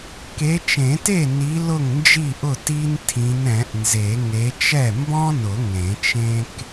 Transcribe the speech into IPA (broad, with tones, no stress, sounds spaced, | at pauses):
k e˨˦ t͡ʃ ẽ˨˩˦ t e˥˩ n i˨˦ l ʊ˥˩ ŋ n d͡ʒ i˥˩ ʔ ʊ˥˩ t i˥ n tʰ ĩ˨˦ n ɛ̃˨˩˦ ʔ n z e˨˩˦ ŋ e˨˦ t͡ʃ ɛ˥˩ m b ɔ̃˥ n ʊ˨˩˦ ŋ ẽ˨˩˦ t͡ʃ ẽ˥ k